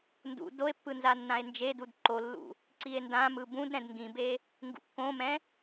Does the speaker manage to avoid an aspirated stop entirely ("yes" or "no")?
yes